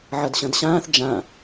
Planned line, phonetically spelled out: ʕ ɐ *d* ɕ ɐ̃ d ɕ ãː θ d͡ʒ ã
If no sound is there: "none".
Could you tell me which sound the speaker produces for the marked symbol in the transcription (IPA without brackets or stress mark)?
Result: d